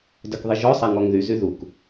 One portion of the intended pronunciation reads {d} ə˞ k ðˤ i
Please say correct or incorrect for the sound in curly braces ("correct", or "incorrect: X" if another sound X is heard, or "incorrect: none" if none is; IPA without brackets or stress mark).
correct